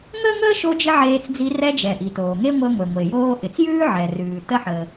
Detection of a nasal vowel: absent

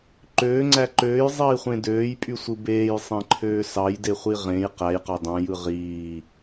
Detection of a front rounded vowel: present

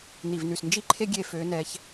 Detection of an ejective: absent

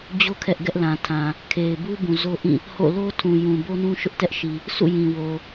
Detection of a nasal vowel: present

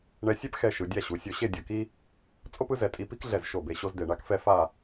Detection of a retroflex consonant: present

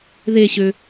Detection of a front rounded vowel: present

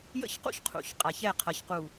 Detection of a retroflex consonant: absent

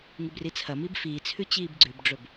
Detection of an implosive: absent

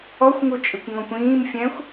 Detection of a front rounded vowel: absent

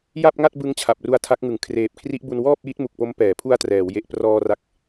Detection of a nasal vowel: absent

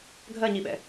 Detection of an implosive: present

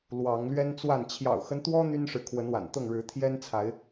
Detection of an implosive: absent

